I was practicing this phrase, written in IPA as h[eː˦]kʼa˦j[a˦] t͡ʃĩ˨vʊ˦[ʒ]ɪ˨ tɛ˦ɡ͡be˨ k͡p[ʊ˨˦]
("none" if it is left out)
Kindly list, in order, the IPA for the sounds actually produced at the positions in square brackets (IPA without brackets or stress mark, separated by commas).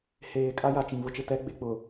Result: eː˨, a˨, t͡ʃ, ʊ˨